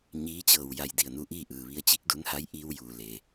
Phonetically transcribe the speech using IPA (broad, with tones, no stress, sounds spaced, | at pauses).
ɲ iː˧˥ t͡ɕ ɤː˧˩ w j a˧˩ j d i˧˩ ə̯ n u˧˥ ʔ iː˥˨ ʔ ɯː˩ ʋ i˧ ə̯ t͡ɕ i˧˥ k̚ d u˧˥ n h a˧˥ j ʔ iː˧ w j uː˩ l e˩